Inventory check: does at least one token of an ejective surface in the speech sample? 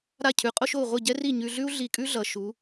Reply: yes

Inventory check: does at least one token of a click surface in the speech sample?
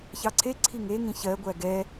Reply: yes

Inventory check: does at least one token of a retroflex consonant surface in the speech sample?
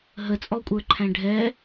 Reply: yes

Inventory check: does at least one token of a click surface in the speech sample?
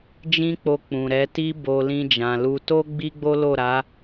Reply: no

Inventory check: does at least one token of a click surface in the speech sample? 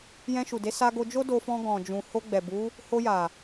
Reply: no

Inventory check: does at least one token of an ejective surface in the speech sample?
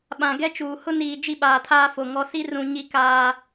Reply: no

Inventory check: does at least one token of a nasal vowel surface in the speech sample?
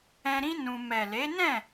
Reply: yes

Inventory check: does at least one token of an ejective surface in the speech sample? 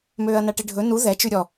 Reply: no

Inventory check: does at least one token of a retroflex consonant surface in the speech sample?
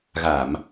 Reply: no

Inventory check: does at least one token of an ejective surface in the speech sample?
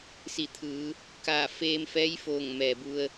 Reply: no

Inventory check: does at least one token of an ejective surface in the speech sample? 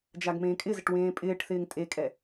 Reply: yes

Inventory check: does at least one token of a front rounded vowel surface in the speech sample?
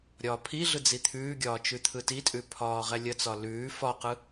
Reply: no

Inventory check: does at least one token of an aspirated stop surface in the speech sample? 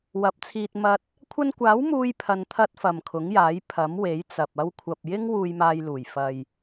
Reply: yes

